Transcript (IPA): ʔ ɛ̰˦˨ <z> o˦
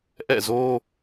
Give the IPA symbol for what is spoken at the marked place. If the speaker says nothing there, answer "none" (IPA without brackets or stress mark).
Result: z